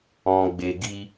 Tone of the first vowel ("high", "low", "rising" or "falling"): low